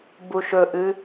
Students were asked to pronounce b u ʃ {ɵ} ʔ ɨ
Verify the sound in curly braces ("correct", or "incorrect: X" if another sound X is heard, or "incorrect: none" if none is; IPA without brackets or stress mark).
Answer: correct